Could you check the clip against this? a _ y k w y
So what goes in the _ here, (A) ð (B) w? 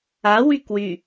B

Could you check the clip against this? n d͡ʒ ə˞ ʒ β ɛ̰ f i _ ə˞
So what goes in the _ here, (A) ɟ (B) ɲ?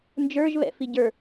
A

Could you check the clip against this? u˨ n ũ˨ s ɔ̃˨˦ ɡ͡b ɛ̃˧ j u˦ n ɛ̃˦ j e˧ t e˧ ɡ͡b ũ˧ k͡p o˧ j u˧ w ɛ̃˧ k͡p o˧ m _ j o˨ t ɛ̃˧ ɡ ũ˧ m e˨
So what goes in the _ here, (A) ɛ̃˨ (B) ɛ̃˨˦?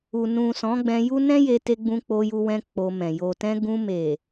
A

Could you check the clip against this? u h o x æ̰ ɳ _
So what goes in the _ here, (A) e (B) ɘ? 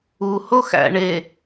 A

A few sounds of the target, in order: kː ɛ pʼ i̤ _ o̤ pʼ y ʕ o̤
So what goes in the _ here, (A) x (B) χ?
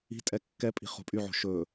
B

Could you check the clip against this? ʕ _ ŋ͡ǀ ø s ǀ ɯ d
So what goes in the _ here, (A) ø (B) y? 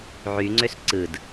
B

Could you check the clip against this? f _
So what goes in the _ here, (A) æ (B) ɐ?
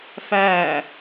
A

